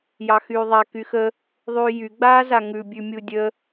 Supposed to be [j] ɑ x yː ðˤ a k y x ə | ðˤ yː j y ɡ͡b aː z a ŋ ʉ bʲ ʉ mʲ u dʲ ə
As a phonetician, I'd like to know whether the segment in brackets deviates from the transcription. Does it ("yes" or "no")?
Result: no